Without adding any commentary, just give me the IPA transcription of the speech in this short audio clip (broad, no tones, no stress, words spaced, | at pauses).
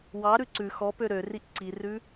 wɑɾʉ ǀʉ xɔpø ɾøriʔ ǀirʉ